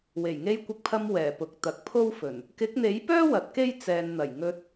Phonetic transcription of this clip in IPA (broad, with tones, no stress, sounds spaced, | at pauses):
w e˨˩ j ŋ e˧ j kʷ ɪ˨˥ k̚ pʰ ɐ˧ m w ɛː˨˩ p ʊ˨ k̚ t̪ ɐ˨ k̚ pʰ o˥ w f ɵ˨˩ n | k ɪ˨˥ k̚ n̪ e˨˥ j p œː˥ w ɐ˨˥ t̚ k e˥ j t͡s ɛː˨ n n̪ ɐ˨˩ j ŋ ɵ˧ t̚